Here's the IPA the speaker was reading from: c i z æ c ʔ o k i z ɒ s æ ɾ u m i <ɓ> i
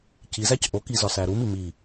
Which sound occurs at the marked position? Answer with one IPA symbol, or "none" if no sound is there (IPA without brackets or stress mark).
m